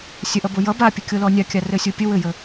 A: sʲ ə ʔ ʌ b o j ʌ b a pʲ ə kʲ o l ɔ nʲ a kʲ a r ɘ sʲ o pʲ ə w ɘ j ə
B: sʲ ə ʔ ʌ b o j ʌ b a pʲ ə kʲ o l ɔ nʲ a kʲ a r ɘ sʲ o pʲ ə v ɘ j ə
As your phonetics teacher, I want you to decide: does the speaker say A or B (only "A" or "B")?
A